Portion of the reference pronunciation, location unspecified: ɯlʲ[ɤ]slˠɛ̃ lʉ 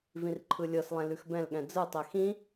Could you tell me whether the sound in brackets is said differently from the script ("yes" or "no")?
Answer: no